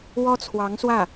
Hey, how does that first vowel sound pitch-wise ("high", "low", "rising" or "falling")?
high